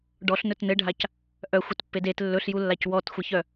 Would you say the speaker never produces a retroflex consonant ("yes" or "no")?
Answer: no